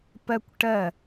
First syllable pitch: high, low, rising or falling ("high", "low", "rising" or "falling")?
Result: high